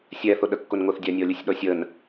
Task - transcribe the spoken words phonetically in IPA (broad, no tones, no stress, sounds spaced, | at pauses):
sʲ ɛ θ ʊ ɗ ə kː ʊ n ŋ ʊ θ dʲ a nʲ ɔ lʲ ʊ sʲ ɗ ɔ sʲ ə n